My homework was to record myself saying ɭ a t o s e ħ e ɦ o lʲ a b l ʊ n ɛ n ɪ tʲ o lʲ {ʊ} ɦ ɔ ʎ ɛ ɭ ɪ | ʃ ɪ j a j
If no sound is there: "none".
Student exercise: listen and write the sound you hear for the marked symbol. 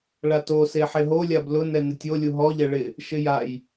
u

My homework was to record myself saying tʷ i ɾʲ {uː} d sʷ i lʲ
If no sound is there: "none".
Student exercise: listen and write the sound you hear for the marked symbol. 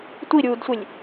uː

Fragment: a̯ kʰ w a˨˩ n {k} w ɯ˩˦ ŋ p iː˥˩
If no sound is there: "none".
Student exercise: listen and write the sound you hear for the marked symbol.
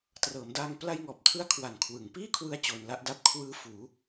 kʰ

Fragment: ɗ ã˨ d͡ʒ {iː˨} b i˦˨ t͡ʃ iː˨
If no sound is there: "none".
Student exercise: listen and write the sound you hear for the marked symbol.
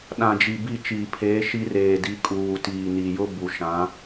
i˨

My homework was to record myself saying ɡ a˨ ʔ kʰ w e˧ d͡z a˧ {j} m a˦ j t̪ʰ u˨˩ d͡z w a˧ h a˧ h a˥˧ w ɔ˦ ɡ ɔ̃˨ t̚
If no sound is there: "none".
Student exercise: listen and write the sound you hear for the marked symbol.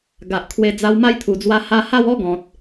w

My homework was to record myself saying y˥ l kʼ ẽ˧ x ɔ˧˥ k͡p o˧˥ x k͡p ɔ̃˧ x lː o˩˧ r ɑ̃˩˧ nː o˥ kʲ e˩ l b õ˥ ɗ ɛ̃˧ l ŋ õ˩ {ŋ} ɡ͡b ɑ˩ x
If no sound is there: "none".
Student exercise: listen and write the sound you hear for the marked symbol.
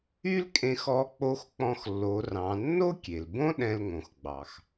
x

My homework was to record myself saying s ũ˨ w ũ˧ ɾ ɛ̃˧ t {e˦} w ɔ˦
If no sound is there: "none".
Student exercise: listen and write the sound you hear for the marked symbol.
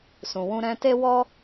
e˦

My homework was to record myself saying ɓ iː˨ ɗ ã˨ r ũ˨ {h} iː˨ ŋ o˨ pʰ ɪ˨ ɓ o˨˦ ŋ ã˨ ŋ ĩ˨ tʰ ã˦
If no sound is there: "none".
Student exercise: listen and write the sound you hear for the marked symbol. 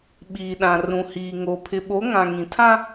h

